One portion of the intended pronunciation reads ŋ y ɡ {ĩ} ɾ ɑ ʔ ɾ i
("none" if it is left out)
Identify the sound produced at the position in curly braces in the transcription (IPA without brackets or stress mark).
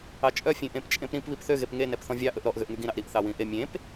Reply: ĩ